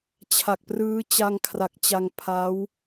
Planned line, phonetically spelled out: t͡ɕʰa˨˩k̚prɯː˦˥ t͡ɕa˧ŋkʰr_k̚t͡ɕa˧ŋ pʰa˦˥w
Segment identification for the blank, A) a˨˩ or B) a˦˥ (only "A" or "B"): A